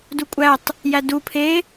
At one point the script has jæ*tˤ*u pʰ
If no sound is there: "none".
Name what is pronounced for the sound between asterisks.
d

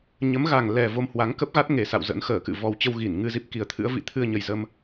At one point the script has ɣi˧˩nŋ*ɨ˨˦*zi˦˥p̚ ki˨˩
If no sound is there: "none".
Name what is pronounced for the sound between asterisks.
ɨ˧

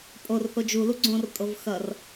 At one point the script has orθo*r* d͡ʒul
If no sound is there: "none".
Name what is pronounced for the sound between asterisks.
none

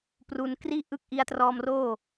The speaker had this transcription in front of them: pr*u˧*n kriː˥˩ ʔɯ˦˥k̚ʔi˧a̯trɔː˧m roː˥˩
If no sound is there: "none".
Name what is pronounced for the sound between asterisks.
u˧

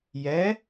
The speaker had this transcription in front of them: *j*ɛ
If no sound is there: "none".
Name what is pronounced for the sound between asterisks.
j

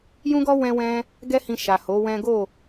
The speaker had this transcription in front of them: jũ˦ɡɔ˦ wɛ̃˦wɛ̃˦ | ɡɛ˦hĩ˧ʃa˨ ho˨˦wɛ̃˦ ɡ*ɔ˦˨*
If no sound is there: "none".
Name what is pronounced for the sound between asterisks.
o˦˨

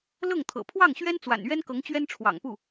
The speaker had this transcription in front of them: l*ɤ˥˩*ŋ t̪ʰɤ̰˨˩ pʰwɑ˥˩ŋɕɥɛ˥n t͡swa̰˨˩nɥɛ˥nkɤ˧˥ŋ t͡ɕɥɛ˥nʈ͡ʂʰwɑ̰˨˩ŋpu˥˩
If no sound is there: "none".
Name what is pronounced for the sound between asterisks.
ɤ˥˩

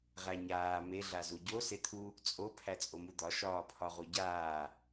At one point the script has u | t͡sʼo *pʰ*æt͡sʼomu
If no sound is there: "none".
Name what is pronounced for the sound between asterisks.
pʰ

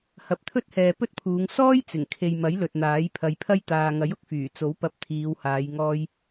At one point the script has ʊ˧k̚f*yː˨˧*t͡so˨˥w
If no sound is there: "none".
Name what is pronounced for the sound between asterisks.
yː˨˩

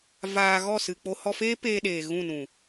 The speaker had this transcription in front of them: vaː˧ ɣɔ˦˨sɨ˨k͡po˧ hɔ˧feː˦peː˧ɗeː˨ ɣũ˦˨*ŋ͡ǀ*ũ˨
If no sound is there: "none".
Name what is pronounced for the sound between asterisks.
n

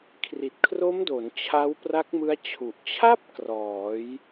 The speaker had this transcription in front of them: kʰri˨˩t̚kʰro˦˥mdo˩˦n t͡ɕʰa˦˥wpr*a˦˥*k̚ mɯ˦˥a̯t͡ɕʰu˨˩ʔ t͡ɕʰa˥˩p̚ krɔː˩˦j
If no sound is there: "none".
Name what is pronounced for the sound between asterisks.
a˦˥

